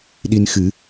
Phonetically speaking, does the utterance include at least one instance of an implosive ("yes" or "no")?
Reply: yes